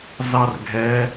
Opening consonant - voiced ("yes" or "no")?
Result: yes